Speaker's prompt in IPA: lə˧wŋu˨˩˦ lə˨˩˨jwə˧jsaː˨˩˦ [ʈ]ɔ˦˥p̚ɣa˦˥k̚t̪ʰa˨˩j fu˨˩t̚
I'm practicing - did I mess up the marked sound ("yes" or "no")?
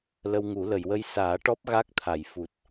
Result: no